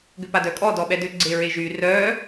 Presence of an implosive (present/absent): present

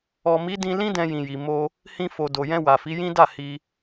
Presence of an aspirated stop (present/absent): absent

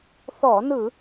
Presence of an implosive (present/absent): absent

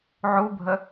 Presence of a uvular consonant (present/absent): absent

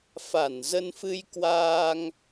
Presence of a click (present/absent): absent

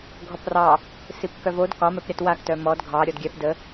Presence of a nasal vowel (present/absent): absent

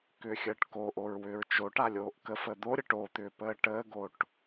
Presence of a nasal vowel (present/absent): absent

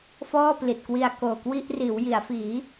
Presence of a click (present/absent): absent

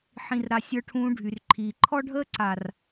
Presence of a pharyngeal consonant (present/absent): present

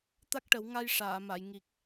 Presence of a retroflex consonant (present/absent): present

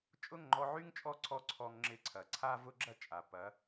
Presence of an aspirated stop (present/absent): present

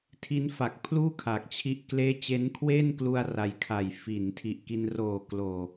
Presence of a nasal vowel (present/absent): absent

